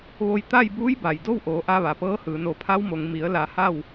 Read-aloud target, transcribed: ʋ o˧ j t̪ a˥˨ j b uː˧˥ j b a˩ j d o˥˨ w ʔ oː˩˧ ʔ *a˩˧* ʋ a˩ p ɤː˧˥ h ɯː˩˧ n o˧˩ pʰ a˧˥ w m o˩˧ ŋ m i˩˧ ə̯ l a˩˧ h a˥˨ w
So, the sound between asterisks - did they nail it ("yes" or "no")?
no